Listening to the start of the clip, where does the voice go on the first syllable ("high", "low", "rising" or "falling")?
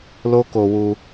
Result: high